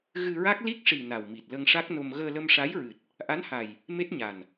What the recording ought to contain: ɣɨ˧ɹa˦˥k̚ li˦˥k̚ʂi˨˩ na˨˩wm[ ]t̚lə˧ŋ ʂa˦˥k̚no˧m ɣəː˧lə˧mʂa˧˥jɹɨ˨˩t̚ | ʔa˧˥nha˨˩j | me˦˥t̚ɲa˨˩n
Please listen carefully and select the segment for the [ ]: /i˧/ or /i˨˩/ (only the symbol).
i˨˩